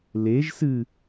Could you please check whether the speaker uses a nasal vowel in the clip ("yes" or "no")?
no